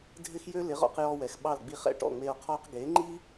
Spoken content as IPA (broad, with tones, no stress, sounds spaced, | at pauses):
dʱ ɪ˥ x j ø˥ l ɪ˩˥ ʁ ɔ̰˧ q j ɔ˧ w ɛ˩ x ɓ ɑ˥˩ l ɡ͡b i˥˩ χ ɛ̰˥˩ ʈ ɔ̰˥˩ ŋ͡m e˧ o̯ qʰ ɔ˥ q ɡ e˩˥ ŋ͡ǃ i˥